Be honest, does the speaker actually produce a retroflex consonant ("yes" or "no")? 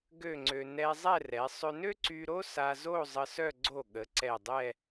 no